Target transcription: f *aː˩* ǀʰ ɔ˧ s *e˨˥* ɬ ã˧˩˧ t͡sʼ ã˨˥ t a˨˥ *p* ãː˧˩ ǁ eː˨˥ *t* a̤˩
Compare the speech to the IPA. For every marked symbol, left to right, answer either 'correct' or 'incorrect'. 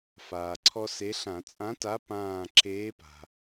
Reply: correct, correct, correct, incorrect: p

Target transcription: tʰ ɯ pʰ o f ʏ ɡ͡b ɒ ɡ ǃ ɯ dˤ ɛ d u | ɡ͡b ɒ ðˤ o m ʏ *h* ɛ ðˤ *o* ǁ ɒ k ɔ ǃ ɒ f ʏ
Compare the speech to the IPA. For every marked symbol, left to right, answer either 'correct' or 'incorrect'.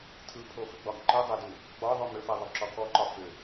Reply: incorrect: f, correct

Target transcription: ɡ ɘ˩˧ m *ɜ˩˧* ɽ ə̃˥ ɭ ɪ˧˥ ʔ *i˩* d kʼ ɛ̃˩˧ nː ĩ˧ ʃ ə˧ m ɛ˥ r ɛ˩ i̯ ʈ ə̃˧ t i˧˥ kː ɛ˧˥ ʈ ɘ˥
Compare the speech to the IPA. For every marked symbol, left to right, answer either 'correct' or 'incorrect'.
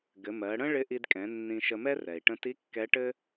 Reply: correct, incorrect: i˧

